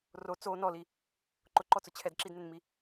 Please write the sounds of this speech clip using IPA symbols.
r o t͡s o n ɔ l i | ǃ ʊ ǃ ɔ t͡s ʊ t͡ɕʰ ɛ d ǁ i d n ɪ n m i

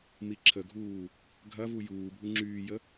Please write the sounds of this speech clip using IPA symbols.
m i ǁʰ ə ɡʱ uː | ɡʱ ɐ v u j uː bʱ u ŋ͡ǁ yː j ə

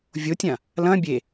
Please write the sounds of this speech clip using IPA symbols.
vʲ o tʲ ã | l ɐ̃ bʲ e

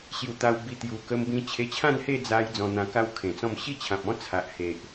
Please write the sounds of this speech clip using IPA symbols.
ɕ j u˨˩ t̪ a˧ w b i˧ t̪ j u˨˩ k ə˧ m b ĩ˧ t͡ɕʰ e˧ t͡ɕʰ ã˥˧ n h e˥˧ d͡z a˧ j d͡z ɔ̃˧ n̪ ã˧ k a˦ w kʰ ẽ˨˩ t͡s ɔ̃˥˧ m ɕ i˥˧ t͡ɕʰ ã˨ p̚ ɔ̃˦ t͡sʰ a˨ ʔ h e˨ ʔ

